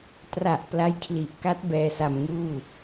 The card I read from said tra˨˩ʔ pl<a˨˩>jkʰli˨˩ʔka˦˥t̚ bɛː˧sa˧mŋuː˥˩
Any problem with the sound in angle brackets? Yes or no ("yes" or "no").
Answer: yes